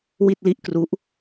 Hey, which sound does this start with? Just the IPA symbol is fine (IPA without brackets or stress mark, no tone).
w